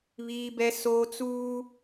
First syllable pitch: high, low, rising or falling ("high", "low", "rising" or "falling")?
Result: high